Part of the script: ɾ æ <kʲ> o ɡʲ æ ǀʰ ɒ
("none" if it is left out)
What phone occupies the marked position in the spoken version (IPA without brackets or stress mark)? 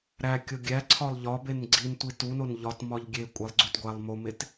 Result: kʲ